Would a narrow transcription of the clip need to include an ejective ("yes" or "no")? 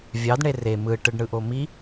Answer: no